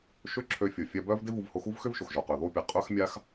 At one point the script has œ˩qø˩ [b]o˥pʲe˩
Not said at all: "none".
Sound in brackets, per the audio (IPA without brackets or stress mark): ð